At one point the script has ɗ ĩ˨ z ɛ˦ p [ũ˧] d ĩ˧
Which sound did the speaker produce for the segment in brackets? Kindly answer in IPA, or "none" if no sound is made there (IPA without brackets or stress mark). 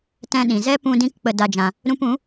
ũ˧